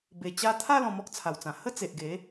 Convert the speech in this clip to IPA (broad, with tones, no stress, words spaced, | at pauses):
be˨˩ t͡ɕa˧t̪ʰa˥˧ lɔ̃˧mɔ˦k̚t͡sʰa˨˩wt͡sã˨˩ hə˥˧t͡se˨ʔɡe˨˦